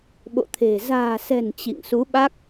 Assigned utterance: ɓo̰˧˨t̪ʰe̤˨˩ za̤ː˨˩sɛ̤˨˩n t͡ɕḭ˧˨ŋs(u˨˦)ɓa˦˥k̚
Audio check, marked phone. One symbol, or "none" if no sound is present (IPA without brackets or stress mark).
u˨˦